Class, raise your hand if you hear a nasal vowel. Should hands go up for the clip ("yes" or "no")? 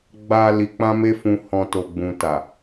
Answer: yes